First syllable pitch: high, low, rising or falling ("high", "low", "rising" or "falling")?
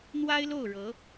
high